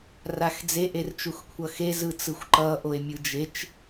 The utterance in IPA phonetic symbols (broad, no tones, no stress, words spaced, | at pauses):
raxd͡ze ʔert͡ʃuxkʷʰʌxe zɯt͡sɯxʷǃʌ ʔoe̯mʲɯd͡ʒet͡ʃ